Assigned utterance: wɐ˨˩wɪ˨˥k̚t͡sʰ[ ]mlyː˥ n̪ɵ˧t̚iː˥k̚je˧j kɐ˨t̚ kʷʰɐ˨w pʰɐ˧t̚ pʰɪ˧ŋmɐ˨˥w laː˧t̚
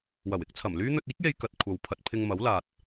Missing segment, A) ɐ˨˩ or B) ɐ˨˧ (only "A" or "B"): A